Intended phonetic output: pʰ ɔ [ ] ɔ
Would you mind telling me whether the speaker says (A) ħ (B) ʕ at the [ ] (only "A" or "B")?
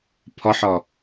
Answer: A